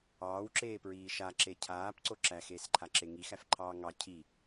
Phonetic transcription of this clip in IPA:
ɑː w ǁ eː p ɹ iː ʃ a ǁ e cʰ aː p ǀ o ǁ æ x eː s ǃʰ a ǁ e ŋ i x æ f ǃʰ ɑː ŋ ɑ cʰ i

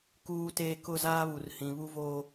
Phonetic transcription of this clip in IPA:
k uː˦ t eː˦ k ʊ˦˨ z aː˦ β u˨ r h ĩ˨ β u˦ v oː˦

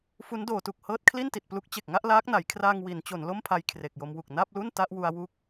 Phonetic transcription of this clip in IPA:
f u˦˥ n d oː˩˦ t u˨˩ k̚ h ɤː˦˥ t̚ kʰ l i˥˩ n t i˨˩ t̚ p l u˦˥ k̚ t͡ɕ e˨˩ k̚ ŋ a˥˩ ʔ l aː˦˥ k̚ n a˩˦ j kʰ r aː˧ ŋ w i˩˦ n t͡ɕ o˩˦ n l o˥˩ m pʰ a˧ j kʰ r e˨˩ k̚ j o˧ m w u˨˩ k̚ n a˥˩ p̚ l u˥˩ n t a˥˩ ʔ w u˧ a̯ w u˦˥ k̚

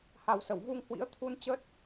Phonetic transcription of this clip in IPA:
h a˨˩ w s ə˧˩ w v u˧ ŋ h w ḭ˧˥ ə̯ t̪ʰ u˧ n t͡ɕ ə˦˥ t̚

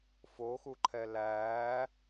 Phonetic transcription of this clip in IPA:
f o x u ǃʰ ɛ l æː

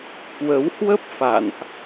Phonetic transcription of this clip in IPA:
k w ə˨˦ w h w ə˦˥ p̚ f a̰˧˨ n ʔ

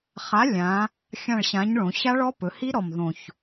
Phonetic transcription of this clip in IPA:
χ a˨˥ lʲ ã˩˧ | xʲ ã˦˨ ɭ ɕ ã˨˥ ɲ ɭ õ˩˧ ɕ a˦˥ ɭ ɔ˦˥ p ɵ˩˧ h i˦˥ ɾ ɔ˨˩ m ð õ˨˩ ç

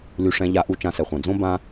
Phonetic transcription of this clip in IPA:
l y˧ ʂ ɛ̃˧˥ ʎ a˧˥ ʔ u˧˥ t͡ʃ ã˧˥ s ɛ˩ χʷ ã˩ d͡z õ˥ b ã˥

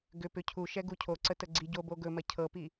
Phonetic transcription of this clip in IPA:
ɡ ʏ p ʏ cʰ u ʃ ɛ ɡ u cʰ o ǀ ə t ə ɡ͡ǀ i ɟ o b o ɡ ɵ m ɐ cʰ ɤ p i

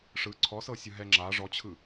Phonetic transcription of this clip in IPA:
ʂ ɯ ǀʰ ɔ s ɤ sʲ ɯ ɦ ɛ ŋ͡ǁ a ʐ ɔ t͡ɕʰ ɯ

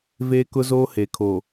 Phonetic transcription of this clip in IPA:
v eː˦ k ʊ˦ z oː˦ h e˨ kʰ o˨

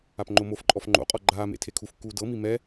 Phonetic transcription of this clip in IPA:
a p ŋ͡ǃ o m o f ǃʼ ɔ f ŋ͡ǃ o̰ qʼ ɔ ɡ͡ǃ aː m ḛ tʰ e kʰ u f kː uː d ɤ m i m ɛ

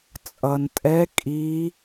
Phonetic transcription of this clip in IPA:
t͡sʼ ʌ˩ n tʼ ɛ˨˦ kʼ i˨˦

